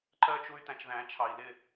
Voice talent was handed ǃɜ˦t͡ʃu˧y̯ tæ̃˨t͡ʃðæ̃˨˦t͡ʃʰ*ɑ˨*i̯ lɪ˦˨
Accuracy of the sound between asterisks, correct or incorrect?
correct